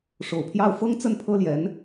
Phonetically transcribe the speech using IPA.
ʂo˨˩ʊ̯pʰjɑ˥˩ʊ̯ fɤ˥ŋt͡sə˥˩n pʰɤ˥ljɛ˧˥n

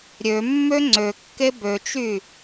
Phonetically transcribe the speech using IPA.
ɾʲømːø ŋ͡ǀøkːe bøt͡ʃy

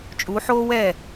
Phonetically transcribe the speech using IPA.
t͡ʃʼu˨˦ħoː˦wɛ˦˨

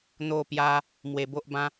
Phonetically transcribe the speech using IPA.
n̪o˥˧pja˦ | mwe˧bo˦ʔbã˦

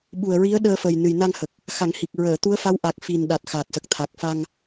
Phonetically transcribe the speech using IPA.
ɓu˨˩ə̯ɹi˧˥ə̯ɗəː˧fə˨˩j nɨ˨˩jna˧ŋhə˨˩k̚ | xa˨˩˦ŋhi˨˩k̚ ɹəː˨˩˨t̪u˧˥ə̯fa˧˥wʔa˨˩k̚ fi˨˩nɗa˨˩t̚ xa˨˩t̚sə˨˩k̚t̪ʰa˨˩k̚fa˧ŋ

